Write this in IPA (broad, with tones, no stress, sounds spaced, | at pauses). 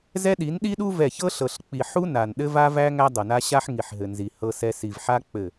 z ɛ˦ ɗ i˨˦ n ɗ i˦ ɗ u˦ v ɛ˦˨ ç ɤ˦ ɬ ɤ˨ ɬ k͡p i˨ ħ u˦ n a˨ n ɗ ɘ˦ v a˦ v æ˦ ŋ æ˦ dˤ ɤ˨ n a˦ ɕ a˦ ħ ŋ i˨ ħ ɦ ɘ˨ n z i˨ h ɤ˦ s ɛ˦ s i˨ v ħ a˦ k͡p ɘ˦˨